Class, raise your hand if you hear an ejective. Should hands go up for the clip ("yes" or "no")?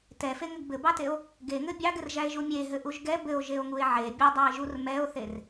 no